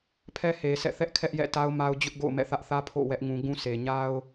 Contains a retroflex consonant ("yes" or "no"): no